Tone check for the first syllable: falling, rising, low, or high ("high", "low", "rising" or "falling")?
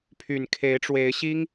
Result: low